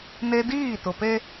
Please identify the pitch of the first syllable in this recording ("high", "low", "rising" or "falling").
high